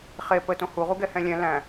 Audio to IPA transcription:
χ e p ə t õ h u ʁ u ɡ ɛ h ɛ̃ lʲ ɛ̃ l æ̃

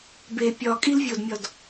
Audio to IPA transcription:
b e pʲ ɒ kʼ i l vʲ o d mʲ ɒ d

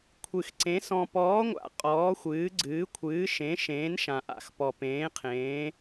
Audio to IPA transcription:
kʷʰ ɨ˨ x ǀ ẽ˨˦ s ɔ̃˨ p ɔː˨˦ ŋʷ a̰˨ qʼ ɔː˨˦ xʷ ɨː˨˦ ɡ͡ǀ ɨː˨˦ kʷʰ ɨː˨˦ ʃ ẽ˨˦ ʃ ẽː˨˦ n ʃ ã˨ ʔ a̰˨ x p ɔ˨ p ẽː˨˦ qʰ ẽː˨˦

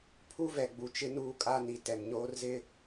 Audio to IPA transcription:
pʰ u˦ v ɛ˨ ɡ͡b u˨ t͡ʃ ɪ˦ n uː˦ kʼ a˦ n i˨ t ɛ˨ m ɲ oː˦ r z ɪ˦

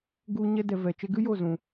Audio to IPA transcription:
ɡ u˧ ɲ ɛ˧ d ɛ˨ v ɛ˨ t͡ʃ e˧ ɡ ɨ˦ j o˦˨ z ũ˨

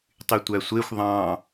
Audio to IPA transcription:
tˤ y tʷ æ sʷ e xʷ ðˤ ɑ̃

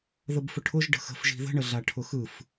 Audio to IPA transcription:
ð ə b f ʊ ʈʰ ʊ ʒ ɖ ə̤ x ə̤ f ʒ i̤ ð ə̤ ɳ ə ɮ a ʈʰ ʊ x ɯ f

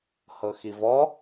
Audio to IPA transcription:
h ɤ x i v ɔ

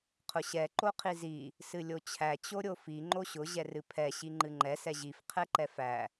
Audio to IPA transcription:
qʰ ʊ ɕ ɛ ǃ o qʰ i z i | s ɨ lʲ o t͡ɕʰ æ t͡ɕ o ɾʲ o f i ŋ͡ǃ o ɕ ʊ ʑ ɛ r ɨ pʰ ɛ ɕ i ŋ͡ǃ ɨ ŋ͡ǃ ɛ s ɛ ʑ i f qʰ ɛ ǃ ɛ f æ

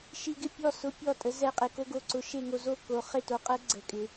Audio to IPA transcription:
ʃ i˦ ɡ ɪ˥˨ pʲ ɔ˥˨ s ʊ˦ pʲ ɔ˥˨ tʼ ə˦ z ɛ˥˨ qʼ e˦ k o˦ ɡ o˥˨ ǀ ʊ˦ ʃ e˥˨ ŋ o˦ z o˥˨ k o˦ χ ɪ˥˨ t o˦ qʼ ə˦ ɡ͡ǀ ə˦ kʼ ɪ˦

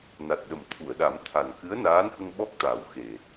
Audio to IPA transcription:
n a˨˩ t̚ ɗ ə˨˩ m t̪ʰ u˨˩˨ ə̯ ɗ a˨˩˦ m t̪ʰ a˨˩ n k ɨ˧˥ ə̯ n aː˧˥ n h ə˧ ŋ ɓ ɔ˦˥ k̚ t̪ a˨˩ w x e˨˩

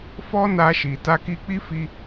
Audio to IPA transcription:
f ɔ˦ n a˧ ʃ i˨ t a˧ k i˧ k͡p i˦ f i˧

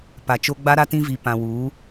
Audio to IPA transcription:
p a˨ t͡ʃ o˦ ɡ͡b a˦ ɾ a˦ t ĩ˦ v i˨ p ã˨ w uː˨˦

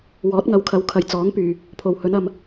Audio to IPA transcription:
w ɔː˨˥ t̚ ŋ ɐ˨˧ w kʰ ɐ˨˧ w kʰ ɐ˨ j t͡s ɔː˨˥ ŋ p yː˨ | pʰ o˨ w h ɵ˨˥ n ɐ˧ m

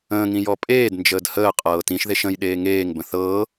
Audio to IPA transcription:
ə̃ː ŋ ĩ j ɔ pʼ eː d n d͡ʒ əː d h əː qʼ ɤː t ĩ ʃ ð e ʃ ə̃ j ɗ eː ŋ eː ŋ b ə̃ θ ɤː

